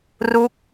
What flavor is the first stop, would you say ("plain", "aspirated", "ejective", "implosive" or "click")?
plain